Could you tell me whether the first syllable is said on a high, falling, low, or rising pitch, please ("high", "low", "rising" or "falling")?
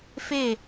falling